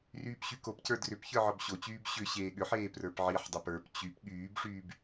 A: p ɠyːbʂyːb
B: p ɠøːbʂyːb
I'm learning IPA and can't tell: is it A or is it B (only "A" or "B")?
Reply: A